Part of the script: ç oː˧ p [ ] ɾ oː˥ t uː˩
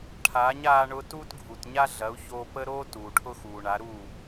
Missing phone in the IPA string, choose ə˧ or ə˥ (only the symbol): ə˥